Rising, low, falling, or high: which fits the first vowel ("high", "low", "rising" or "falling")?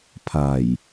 low